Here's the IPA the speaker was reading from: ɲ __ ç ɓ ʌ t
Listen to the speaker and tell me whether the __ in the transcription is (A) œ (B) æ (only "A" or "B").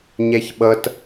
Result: B